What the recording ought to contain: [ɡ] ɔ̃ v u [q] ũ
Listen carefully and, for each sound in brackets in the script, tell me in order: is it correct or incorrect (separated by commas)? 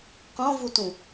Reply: incorrect, incorrect